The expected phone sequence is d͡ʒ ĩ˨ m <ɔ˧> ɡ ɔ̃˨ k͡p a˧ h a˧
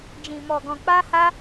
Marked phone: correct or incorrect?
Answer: incorrect: ɔ˨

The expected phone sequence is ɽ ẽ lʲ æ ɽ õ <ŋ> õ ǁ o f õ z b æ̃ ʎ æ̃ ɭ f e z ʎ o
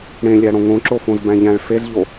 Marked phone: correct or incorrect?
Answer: correct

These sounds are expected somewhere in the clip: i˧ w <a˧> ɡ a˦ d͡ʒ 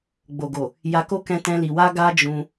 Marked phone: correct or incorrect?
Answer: incorrect: a˦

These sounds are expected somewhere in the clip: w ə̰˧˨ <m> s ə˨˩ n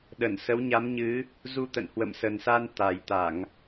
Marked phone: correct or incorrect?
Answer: correct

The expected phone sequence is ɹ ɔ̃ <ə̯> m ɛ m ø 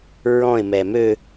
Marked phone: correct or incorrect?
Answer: incorrect: ɪ̯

